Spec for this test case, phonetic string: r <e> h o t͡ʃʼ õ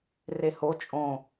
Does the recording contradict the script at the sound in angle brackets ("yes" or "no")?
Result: no